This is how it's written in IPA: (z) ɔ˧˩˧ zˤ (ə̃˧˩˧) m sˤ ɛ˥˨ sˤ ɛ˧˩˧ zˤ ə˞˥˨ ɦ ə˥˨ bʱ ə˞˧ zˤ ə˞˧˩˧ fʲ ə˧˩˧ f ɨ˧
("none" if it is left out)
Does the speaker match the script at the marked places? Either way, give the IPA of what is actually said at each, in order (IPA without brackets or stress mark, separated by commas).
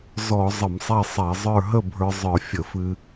z, ə˧˩˧